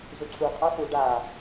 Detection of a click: present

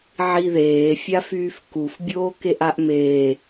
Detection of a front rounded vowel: present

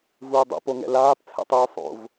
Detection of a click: absent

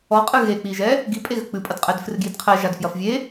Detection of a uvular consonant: present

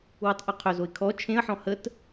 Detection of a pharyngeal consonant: present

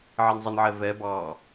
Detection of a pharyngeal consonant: present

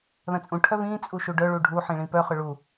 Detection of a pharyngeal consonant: present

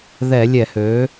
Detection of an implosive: absent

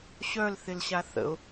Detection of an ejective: absent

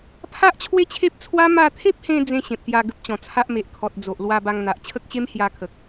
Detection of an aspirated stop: present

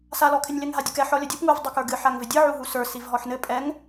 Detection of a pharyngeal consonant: present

